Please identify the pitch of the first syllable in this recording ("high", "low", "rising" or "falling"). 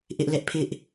high